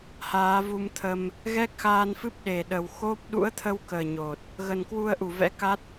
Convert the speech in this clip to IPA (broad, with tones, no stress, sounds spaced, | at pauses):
h aː˨˦ v u˧ m t̪ʰ ə˧ m | ɣ ɛ˦˥ k̚ x aː˧ n f ɨ˦˥ p̚ ɗ e˨˩ ɗ ə˨˩ w x o˦˥ p̚ ɗ ṵ˧˥ ə̯ t̪ʰ ə˧ w k əː˨˩ ɲ o˨˩ t̚ | ɣ ə˨˩ n k w u˧ ə̯ ʔ u˧˩ v ɛ̰˧˥ k a˦˥ t̚